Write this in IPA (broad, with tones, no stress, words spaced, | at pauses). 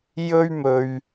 jɵ˥ɥmɵ˧ɥ